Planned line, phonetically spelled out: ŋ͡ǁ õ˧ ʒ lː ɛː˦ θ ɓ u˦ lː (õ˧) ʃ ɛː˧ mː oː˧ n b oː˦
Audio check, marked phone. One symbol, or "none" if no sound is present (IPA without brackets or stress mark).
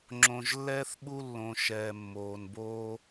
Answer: õ˧